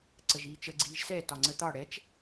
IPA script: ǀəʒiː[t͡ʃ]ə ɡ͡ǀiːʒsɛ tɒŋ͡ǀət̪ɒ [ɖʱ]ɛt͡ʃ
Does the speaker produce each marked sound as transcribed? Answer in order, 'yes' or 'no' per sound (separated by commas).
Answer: yes, no